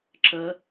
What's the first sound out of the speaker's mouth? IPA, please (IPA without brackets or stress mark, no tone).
ǁ